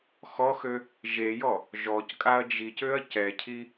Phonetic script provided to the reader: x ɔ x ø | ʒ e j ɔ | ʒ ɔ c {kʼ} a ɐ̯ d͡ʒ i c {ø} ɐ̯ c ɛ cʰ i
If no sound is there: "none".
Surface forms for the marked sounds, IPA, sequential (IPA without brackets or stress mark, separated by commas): kʼ, ø